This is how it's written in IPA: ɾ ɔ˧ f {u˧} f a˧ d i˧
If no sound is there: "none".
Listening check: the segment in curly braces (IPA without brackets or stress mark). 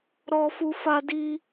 u˧